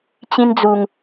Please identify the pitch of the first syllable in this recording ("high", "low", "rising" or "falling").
high